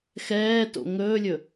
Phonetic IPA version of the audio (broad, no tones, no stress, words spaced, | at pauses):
xɛːto̰ ŋɵːlʲɵ